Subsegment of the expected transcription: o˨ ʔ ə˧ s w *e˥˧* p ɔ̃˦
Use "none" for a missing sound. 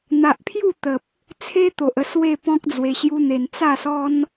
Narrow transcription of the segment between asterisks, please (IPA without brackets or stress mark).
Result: e˥˧